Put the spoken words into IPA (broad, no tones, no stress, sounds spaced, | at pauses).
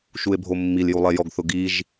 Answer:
ʃ u e̯ bʱ o mː i l j u lˠ e j ɔ ɡ θ ʊ ɡ i ʒ